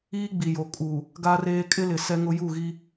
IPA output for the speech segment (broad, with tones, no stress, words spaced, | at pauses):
iː˦ɡ͡bi˨jo˨ kʼu˨ | ɡa˦reː˦ kʼɪ˦lɪ˨ sɛ˦ŋʊ˦ ju˦˨ɣi˦